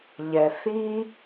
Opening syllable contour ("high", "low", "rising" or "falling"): low